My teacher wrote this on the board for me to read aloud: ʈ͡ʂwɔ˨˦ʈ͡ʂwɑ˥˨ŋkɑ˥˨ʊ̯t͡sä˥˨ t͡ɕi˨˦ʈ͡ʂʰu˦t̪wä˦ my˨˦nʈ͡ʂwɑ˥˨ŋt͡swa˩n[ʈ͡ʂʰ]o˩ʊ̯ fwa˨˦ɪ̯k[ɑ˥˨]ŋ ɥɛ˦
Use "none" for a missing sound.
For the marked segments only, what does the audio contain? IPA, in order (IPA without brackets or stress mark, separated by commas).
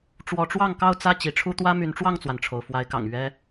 ʈ͡ʂʰ, ɑ̰˨˩